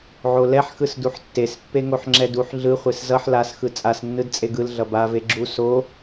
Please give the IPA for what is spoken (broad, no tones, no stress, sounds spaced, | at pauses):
ʕ o l ɛ ħ x ɯ s d u ħ tː e s pː e ŋ o ħ ŋ͡ǁ ɛ d u ħ ɮ ɯ χʷ e s z ʌ ħ l a s x ɯ t͡sʼ a s nː ɯ d t͡sʼ e ɡ ɯ l ɮ ʌ b a v e ɡ͡ǁ u s o